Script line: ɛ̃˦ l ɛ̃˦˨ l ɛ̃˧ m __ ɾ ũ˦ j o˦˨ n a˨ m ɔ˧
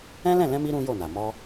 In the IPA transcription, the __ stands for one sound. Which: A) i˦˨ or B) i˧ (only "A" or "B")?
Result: B